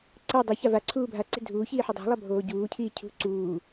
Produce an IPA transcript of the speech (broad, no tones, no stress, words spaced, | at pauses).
ǀɐ dˤiça va ǀʰuːbʱaǀe̤ dʱuːçiː ħudˤo̤lˠɐ bʱoːɟuːcʰiː cʰṳ ǀuː